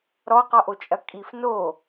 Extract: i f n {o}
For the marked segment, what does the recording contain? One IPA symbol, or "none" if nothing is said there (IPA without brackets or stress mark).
o